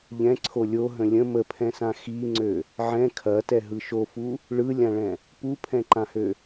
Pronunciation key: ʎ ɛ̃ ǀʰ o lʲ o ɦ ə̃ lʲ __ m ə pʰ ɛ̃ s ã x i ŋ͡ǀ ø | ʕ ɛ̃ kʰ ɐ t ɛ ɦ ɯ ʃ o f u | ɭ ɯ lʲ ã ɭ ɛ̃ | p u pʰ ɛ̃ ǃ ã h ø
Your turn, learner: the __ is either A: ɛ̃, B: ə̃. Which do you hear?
B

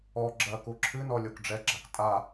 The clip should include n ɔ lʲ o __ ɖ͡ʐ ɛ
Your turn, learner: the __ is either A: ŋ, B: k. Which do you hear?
B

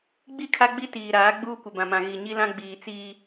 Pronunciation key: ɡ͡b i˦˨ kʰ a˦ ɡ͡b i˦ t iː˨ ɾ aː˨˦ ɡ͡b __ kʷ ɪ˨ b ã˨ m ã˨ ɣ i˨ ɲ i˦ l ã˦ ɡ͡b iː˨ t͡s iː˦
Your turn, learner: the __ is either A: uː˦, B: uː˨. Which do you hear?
A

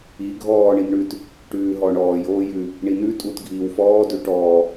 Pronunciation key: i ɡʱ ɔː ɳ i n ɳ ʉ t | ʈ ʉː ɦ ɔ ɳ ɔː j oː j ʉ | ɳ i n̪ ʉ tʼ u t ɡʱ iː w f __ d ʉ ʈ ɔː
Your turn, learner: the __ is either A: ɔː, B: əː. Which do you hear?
A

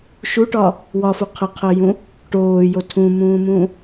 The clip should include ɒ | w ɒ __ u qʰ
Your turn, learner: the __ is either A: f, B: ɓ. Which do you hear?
A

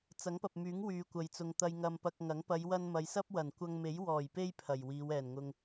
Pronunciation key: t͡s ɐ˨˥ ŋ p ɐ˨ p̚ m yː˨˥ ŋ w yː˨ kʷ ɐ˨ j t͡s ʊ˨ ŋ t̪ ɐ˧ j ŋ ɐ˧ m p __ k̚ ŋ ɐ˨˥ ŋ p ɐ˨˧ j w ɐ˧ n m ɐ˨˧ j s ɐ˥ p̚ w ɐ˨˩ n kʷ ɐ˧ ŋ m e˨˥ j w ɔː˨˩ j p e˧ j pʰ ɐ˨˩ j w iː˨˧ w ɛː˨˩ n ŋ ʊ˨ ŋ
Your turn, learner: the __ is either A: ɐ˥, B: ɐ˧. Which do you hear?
B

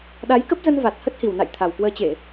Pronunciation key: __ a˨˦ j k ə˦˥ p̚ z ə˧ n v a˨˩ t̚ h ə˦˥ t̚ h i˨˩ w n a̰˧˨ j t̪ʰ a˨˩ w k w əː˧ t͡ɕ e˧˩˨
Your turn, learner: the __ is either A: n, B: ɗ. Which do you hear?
B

